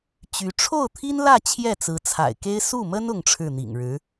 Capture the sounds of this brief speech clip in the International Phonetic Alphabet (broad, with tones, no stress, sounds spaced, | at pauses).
t͡ɕ y˧˥ ʈ͡ʂʰ o˥˩ ʊ̯ t̪ʰ i˥ n l ä˥˧ t͡ɕʰ j ɛ˥˩ t͡s ɹ̩˧˥ t͡sʰ a̰˨˩ ɪ̯ k e˥ ɪ̯ s u˥˩ m ə˥ n ʊ˥˧ ŋ ʈ͡ʂʰ ɻ̩˥˩ n̪ ḭ˨˩ ŋ ɻ ɻ̩˧˥